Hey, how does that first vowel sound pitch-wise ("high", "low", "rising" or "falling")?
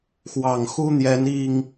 low